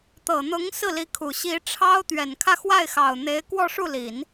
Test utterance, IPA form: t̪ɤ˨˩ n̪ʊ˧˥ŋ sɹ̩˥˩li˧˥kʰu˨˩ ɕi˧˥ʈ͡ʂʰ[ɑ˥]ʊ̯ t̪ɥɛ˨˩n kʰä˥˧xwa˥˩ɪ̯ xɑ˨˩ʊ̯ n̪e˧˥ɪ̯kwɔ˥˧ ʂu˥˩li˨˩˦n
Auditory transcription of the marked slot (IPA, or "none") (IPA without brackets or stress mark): ɑ˥